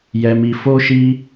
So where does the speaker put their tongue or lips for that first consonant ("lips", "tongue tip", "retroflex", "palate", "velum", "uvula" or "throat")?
palate